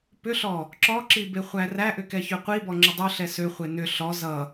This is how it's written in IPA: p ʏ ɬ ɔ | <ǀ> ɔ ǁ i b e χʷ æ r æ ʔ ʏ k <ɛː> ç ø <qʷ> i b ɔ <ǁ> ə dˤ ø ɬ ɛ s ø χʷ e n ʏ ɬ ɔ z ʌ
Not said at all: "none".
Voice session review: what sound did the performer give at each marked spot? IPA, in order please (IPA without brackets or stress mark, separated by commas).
ǁ, ɛ, qʷ, ŋ͡ǁ